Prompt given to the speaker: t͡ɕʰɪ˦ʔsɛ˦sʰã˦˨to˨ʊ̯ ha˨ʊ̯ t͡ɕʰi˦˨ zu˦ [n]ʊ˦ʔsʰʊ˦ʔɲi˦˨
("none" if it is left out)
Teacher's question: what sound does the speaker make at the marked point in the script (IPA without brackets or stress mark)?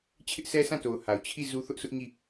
θ